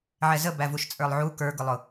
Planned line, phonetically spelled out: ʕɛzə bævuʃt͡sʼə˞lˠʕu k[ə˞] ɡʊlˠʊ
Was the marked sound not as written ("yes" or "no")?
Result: no